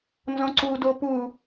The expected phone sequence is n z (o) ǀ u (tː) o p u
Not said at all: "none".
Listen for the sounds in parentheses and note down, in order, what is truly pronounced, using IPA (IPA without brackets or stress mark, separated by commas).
õ, d